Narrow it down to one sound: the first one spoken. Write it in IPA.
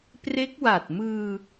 p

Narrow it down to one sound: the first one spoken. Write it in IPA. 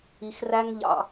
i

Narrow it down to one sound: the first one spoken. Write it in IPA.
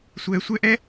sʷ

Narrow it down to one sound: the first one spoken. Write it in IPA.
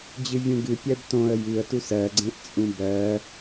d͡ʑ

